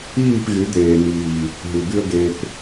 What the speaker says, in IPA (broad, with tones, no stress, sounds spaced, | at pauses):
iː˦˨ p ɣ y˨˦ d̪ eː˨ n iː˨ | ɦ ʉ˨ ɡ y˦ ə̯ ɡ e˨ p